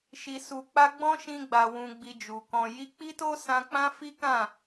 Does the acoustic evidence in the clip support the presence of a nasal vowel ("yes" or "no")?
yes